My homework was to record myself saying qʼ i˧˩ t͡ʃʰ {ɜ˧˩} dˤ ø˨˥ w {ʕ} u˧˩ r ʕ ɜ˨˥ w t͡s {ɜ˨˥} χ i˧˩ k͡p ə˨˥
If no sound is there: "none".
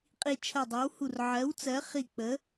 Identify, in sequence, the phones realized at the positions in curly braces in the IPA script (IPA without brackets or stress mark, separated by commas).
ɜ˧˩, h, ɜ˨˥